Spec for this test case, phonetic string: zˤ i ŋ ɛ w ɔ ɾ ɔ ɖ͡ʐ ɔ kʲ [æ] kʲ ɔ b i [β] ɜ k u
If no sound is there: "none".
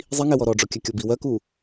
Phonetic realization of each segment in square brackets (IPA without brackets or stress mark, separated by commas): æ, w